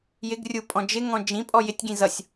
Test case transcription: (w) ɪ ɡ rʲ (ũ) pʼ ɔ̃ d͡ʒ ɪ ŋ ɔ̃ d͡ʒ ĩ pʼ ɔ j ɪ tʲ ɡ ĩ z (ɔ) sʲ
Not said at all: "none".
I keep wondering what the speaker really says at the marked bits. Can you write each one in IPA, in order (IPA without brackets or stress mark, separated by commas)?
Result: j, u, ʌ